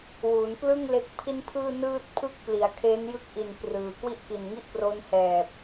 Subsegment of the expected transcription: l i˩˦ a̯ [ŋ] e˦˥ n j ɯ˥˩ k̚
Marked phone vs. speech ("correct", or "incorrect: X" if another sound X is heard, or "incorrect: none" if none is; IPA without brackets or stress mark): incorrect: kʰ